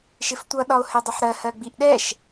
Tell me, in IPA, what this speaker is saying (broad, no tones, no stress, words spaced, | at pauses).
ʃɪftʷʌ ɗɒo̯hɛdˤʊħɾɜ hɜɡ͡biʔɗɛʃ